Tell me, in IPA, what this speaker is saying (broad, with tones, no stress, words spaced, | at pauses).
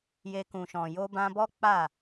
je˧kũ˨ʃɔ̃˨ jo˧bã˧bɔ˦ k͡pa˦˨